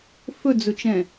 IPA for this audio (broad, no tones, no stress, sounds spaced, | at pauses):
f ɵ d͡z ɵ t͡ʃ ɛ̃